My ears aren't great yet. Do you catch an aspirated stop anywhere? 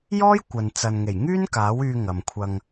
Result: yes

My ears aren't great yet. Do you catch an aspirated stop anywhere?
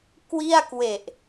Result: no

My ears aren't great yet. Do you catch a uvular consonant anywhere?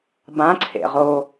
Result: yes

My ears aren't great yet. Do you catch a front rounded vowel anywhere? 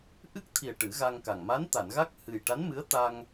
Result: no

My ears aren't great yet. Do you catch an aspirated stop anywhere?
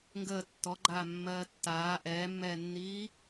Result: no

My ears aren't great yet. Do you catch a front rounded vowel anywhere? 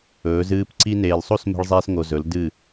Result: no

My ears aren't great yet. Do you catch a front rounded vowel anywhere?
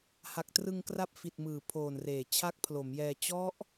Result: no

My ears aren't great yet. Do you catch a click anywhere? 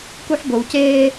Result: no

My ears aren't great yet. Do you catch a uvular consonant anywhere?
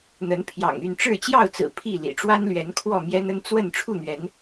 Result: no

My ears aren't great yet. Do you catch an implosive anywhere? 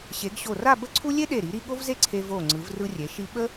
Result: yes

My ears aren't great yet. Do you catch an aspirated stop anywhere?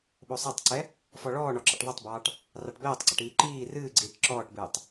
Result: no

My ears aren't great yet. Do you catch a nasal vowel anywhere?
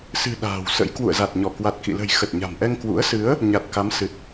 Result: no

